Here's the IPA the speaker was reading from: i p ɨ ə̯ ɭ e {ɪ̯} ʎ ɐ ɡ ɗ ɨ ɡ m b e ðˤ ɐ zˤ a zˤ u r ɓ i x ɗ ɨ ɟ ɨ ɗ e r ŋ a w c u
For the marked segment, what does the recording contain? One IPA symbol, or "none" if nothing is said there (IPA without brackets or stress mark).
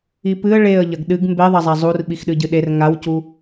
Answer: ə̯